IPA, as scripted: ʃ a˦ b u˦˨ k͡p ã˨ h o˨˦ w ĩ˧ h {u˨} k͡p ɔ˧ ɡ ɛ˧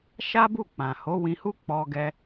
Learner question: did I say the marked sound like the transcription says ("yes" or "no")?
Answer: no